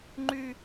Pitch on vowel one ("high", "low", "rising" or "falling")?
high